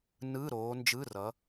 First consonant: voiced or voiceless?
voiced